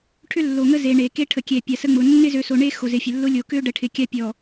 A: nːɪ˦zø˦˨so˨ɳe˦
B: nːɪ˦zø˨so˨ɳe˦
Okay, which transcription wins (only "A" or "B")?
B